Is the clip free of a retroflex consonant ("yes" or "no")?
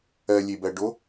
no